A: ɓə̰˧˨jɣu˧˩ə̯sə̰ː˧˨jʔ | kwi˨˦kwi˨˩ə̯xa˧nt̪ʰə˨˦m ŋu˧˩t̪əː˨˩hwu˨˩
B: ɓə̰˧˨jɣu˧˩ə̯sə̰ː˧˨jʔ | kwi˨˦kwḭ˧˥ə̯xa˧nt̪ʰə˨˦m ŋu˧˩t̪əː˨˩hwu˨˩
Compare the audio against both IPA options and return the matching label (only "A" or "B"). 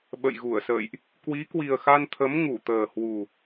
A